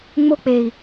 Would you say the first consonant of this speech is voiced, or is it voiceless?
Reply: voiced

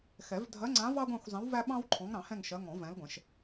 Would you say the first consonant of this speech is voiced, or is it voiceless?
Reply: voiceless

